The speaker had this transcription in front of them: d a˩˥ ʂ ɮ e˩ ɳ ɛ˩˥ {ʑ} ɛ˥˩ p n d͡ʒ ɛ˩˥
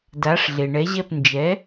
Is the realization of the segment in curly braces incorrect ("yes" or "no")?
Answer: no